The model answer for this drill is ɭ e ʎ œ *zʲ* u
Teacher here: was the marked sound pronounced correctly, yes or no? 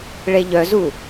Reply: no